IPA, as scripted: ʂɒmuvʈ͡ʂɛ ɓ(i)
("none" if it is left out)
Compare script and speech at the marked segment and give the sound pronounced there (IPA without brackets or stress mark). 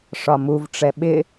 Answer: ɪ